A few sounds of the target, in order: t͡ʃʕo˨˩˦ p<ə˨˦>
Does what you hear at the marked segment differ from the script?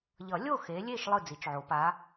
yes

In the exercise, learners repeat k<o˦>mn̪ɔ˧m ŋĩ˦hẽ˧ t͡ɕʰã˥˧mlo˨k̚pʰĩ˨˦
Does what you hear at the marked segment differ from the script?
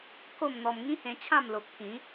yes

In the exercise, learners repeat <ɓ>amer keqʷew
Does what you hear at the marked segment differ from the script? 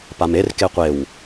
yes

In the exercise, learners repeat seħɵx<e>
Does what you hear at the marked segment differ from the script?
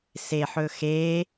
yes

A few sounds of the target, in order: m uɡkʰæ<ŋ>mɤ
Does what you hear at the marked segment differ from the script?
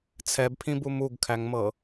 no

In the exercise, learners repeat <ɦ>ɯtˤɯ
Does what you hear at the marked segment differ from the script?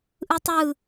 yes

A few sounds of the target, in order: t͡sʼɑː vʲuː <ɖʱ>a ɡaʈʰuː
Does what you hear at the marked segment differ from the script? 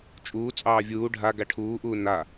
no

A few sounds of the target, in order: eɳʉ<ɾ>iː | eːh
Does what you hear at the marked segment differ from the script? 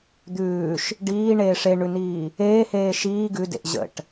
yes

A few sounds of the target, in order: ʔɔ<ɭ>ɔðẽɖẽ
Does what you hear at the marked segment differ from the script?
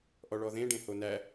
no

